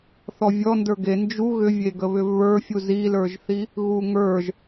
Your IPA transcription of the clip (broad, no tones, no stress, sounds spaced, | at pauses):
θ ɔ vʲ ɔ n d ə˞ ɡ e n d͡ʒ u ɣ ʏ vʲ e ɡ ə β ʏ v β ə˞ fʲ u z i l ə˞ ʒ θ i | ɣ u ŋ ə˞ ʒ